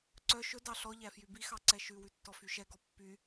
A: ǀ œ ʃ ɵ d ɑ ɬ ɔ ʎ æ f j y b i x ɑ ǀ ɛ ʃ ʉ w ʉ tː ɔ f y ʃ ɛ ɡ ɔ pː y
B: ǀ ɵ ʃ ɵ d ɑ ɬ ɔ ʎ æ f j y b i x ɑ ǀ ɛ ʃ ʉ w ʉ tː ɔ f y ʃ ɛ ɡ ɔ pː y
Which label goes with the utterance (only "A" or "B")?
A